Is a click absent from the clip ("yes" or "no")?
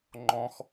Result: no